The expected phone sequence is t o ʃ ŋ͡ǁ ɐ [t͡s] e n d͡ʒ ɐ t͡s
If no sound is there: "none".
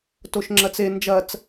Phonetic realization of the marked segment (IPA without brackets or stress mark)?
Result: t͡s